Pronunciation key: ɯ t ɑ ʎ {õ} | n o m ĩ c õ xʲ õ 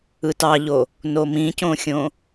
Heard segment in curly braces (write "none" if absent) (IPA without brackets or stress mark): o